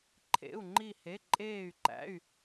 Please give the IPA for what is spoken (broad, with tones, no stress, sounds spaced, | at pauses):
ǃʰ ḛ˩˧˩ u̯ ŋ͡ǃ i˧˩ h e˩˧˩ ǃʼ eː˧˩ y̯ ǃ æ̰˩˧˩ y̯